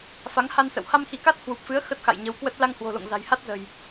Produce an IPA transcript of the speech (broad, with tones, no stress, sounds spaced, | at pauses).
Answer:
f a˨˦ ŋ h a˧ n s ə̰˧˨ w h a˧ m x i˧˩ k a˦˥ t̚ h w u˨˩ p̚ f ɨ˨˦ ə̯ x ə˦˥ t̚ x a̰˧˨ j ɲ ə˨˦ w k w ə˦˥ t̚ l a˧ ŋ h w o̤˨˩ l o̰˧˨ ŋ z a̤˨˩ j h a˦˥ t̚ z ə̤˨˩ j